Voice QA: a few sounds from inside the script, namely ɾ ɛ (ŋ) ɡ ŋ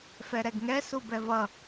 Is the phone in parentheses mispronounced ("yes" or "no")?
yes